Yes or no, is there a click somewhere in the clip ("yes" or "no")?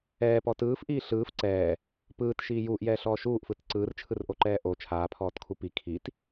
yes